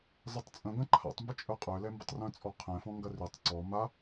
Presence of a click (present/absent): present